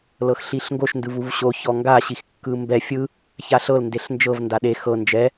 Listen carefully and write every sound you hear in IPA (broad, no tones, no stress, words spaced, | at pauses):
lɤxɬiɬŋɡoʃ ndɯvuvɕo çɔŋɡa ɕixkːɯmbɛ fʲɯ | çaɬɤl ndeɬnd͡ʒɤv ndaɗe xɤ nd͡ʒɛ